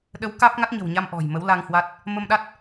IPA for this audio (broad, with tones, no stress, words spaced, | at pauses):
ɗə˨˦w kaː˦˥p̚ŋa˦˥t̚ɲə̤˨˩wɲa˧m ʔɔ̤˨˩j mə˨˦wla˧ŋhwa˦˥t̚ | mə˧mɗa˦˥t̚